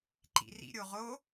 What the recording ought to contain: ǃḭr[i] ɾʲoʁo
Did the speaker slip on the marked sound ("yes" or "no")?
yes